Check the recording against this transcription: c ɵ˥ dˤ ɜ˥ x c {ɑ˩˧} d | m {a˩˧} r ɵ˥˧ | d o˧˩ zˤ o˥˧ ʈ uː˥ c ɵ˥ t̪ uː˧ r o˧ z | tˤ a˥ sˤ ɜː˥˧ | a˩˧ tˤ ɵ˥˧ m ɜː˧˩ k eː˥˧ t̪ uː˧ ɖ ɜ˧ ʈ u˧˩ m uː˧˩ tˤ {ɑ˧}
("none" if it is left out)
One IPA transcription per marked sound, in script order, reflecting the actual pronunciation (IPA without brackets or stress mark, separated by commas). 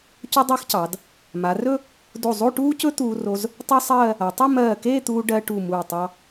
ɑ˩˧, a˩˧, ɑ˧